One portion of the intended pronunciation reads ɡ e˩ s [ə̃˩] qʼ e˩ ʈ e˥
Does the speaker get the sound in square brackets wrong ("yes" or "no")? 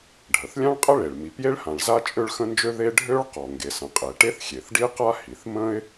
no